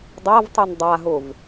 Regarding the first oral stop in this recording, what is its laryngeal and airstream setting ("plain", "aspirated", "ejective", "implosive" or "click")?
plain